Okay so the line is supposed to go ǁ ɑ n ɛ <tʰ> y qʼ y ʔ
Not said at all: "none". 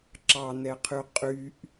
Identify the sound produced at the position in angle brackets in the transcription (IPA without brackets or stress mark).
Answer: qʰ